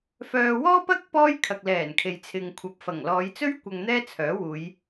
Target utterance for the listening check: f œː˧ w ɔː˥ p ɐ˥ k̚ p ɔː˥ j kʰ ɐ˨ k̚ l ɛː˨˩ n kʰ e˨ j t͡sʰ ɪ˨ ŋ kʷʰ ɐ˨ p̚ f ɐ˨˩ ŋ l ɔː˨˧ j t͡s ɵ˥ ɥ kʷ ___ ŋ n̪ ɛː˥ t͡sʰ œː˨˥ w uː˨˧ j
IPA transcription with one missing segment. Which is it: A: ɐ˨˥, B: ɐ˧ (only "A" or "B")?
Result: B